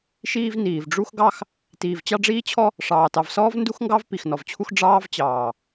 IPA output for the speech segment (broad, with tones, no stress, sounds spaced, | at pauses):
ʃ iː˦ v n iː˨ v ɖ͡ʐ u˦ x ɡ ɑ˦ x | t iː˨ v t͡ɕ ɑ˦ ɖ͡ʐ iː˦ t͡ɕʰ ɔ˦ | ʂ ɑː˨ t ɑ˨ v s ɔː˦ v n d u˦ x ŋ ɡ ɑ˦ v p i˨ x n ɔ˨ v t͡ɕʰ u˦ x ɖ͡ʐ ɑː˦ v t͡ɕ ɑː˨